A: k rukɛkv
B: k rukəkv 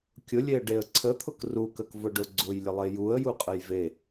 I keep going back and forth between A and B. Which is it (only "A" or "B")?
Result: B